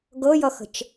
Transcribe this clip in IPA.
ɡ ɤ j ʌ x ə̤ t͡ʃ

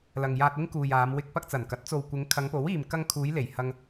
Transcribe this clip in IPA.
l ɐ˨ ŋ j aː˧ t̚ ɪ˥ ŋ k uː˨ j aː˨˧ m w ɪ˧ k̚ p ɐ˧ k̚ t͡s ɐ˨˩ n k ɐ˨˥ t̚ t͡s o˨ w kʷ ɪ˨˧ ŋ kʰ ɐ˨˧ ŋ p o˨˥ w iː˨ m k ɐ˧ ŋ kʰ uː˨˧ j l e˨˩ j h ɐ˧ ŋ

